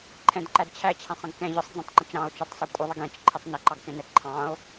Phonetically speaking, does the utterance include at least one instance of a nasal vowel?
yes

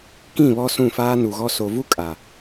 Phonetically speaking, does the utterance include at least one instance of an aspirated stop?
no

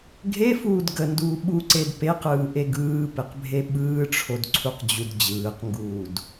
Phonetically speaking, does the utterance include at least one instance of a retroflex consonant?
yes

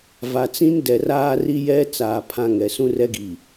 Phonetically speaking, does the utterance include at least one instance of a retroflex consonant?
no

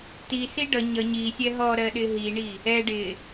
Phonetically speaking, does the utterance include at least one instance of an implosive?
yes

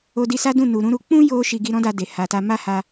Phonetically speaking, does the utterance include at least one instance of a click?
no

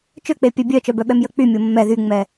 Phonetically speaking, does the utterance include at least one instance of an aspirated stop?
no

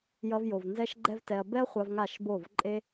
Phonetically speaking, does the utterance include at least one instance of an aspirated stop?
no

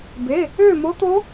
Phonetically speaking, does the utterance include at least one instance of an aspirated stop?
no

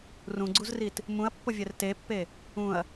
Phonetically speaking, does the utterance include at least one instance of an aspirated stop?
no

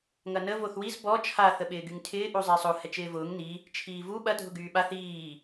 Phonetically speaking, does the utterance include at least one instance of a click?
no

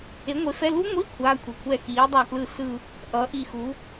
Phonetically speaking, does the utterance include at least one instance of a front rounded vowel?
no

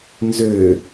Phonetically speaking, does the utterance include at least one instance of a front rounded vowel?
yes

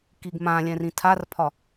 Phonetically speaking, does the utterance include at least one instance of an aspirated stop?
yes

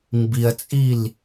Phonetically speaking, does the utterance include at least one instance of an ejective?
yes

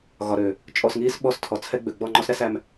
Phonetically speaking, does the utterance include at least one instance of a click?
yes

